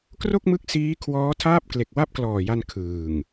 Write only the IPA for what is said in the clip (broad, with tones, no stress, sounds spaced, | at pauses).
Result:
k r o˥˩ k̚ m ɯ˦˥ k̚ s iː˦˥ kʰ w ɔː˦˥ tʰ aː˥˩ p̚ k l e˨˩ k̚ w a˥˩ p̚ k l ɔː˨˩ j a˧ n kʰ ɯː˨˩ ŋ